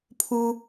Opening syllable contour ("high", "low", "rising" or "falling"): low